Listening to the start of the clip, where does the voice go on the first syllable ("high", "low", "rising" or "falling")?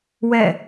falling